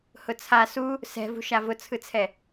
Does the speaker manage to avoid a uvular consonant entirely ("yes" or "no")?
yes